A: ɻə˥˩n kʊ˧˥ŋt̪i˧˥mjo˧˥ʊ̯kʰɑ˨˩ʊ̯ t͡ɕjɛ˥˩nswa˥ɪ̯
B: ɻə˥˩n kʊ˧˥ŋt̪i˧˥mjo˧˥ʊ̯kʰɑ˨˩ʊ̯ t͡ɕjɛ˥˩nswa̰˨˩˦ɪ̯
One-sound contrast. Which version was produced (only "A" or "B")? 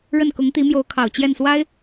A